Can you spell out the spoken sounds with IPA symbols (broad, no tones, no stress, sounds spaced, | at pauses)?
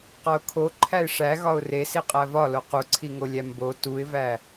q ɒ ʊ̯ kʰ o ǃʰ æ ɪ̯ ʂ æ ɣ ɒ ʊ̯ r e s i qʼ æ v ɒ l o q u ǀʰ i ŋ o lʲ æ m b o t u ɪ̯ v æ